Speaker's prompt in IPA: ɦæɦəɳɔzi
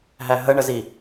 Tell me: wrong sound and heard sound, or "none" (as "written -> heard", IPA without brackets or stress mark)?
ɔ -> ə